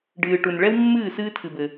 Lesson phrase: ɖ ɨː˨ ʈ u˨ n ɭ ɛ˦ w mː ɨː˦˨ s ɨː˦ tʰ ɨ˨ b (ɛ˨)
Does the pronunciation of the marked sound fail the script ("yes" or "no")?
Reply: yes